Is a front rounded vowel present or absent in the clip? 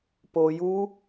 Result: absent